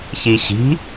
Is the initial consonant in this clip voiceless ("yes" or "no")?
yes